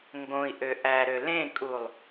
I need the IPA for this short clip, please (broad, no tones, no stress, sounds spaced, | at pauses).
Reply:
ŋ ɡ õ i̯ ʔ ø ʔ æ ɾ ø l ẽ kʼ u lˠ